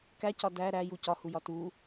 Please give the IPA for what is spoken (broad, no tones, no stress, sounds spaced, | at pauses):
k æ c ɒ d æ ɾ æ j u c ɒ h u j ɒ t u